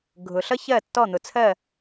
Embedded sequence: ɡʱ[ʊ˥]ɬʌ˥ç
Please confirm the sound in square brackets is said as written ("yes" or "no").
no